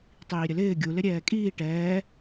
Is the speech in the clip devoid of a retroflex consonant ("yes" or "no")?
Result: no